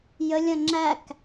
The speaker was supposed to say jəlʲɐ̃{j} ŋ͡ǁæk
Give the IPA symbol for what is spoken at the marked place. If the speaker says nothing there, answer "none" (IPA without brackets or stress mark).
none